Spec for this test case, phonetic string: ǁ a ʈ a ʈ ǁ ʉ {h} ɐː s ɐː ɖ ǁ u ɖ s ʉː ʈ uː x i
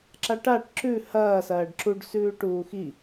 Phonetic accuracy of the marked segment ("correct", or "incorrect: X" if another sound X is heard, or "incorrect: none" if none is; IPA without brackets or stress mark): correct